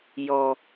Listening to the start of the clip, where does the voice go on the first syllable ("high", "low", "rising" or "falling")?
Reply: low